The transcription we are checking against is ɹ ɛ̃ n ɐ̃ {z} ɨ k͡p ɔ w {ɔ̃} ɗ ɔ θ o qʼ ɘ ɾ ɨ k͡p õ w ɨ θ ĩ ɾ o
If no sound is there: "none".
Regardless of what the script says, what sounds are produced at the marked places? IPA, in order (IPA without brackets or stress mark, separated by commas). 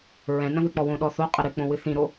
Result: ð, õ